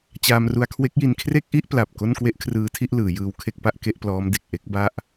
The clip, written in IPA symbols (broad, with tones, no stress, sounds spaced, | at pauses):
t͡ɕ aː˧ m r u˧ a̯ kʰ w e˦˥ k̚ j i˧ n kʰ r e˥˩ k̚ ʔ i˥˩ ʔ p l a˨˩ p̚ k o˥˩ n k w e˥˩ ʔ kʰ r ɯː˦˥ tʰ i˥˩ ʔ l ɯː˩˦ j ɯː˧ w kʰ e˥˩ k̚ p a˥˩ ʔ k e˥˩ ʔ p l ɔː˦˥ m d e˨˩ k̚ ʔ e˥˩ k̚ b a˥˩ ʔ